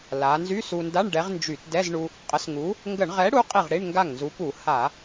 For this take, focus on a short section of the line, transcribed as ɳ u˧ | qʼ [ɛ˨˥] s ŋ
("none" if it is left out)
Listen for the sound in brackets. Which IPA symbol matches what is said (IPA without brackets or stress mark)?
ə˨˥